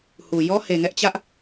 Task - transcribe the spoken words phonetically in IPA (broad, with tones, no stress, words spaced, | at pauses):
hu˨ jɔ˦he˨ŋɛ˦ʔt͡ɕä˦ʔ